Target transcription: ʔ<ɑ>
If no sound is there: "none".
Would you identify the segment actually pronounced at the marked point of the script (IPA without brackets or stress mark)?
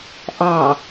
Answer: ɑ